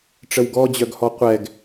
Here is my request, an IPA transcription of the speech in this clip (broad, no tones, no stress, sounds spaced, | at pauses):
ʈ͡ʂ ə w ɡ ɔ d͡ʑ œ ɡ h ɔ qʷ ɛ ɡ